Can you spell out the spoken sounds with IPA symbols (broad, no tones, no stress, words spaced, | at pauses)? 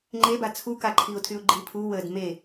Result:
ŋ͡ǃeba t͡sʰukaǃʰiʊ̯tʰyʊ̯ ɡ͡ǃipʰu wəd me